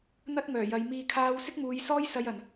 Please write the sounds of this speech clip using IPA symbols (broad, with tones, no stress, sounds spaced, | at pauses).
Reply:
n̪ ɐ˥ t̚ ŋ œː˨˩ j ɐ˨˧ j m iː˧ kʰ aː˥ w s ɪ˥ k̚ m uː˨˧ j s ɔː˥ j s ɐ˥ j ɐ˨ n